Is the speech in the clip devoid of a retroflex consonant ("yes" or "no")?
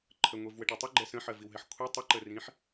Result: no